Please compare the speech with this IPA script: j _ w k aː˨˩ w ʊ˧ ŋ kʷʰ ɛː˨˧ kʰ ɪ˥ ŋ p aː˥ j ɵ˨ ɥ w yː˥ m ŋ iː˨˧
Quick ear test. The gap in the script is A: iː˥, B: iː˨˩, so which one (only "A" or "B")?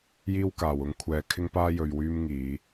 A